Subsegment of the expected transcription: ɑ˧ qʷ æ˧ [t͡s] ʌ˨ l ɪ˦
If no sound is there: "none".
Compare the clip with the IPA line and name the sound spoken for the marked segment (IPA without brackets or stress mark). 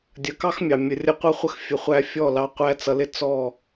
t͡s